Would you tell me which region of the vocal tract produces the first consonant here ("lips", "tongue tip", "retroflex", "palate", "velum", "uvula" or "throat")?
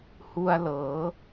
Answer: throat